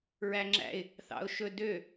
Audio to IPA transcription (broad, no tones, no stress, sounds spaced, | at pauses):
ɹ æ ŋ͡ǁ æ̰ ɪ̯ | θ ɑ̰ ʊ̯ ʃ ɵ d ø